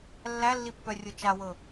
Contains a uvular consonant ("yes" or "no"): no